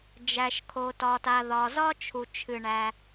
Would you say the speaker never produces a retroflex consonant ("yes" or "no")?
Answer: no